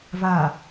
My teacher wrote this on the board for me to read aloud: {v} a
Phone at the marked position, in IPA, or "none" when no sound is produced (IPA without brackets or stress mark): v